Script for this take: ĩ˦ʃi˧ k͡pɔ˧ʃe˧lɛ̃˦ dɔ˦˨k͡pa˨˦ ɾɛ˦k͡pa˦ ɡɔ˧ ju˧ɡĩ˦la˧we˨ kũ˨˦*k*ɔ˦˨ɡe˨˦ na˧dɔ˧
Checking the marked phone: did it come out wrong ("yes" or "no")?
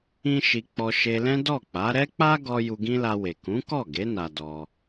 no